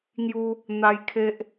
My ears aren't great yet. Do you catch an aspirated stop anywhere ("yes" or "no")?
yes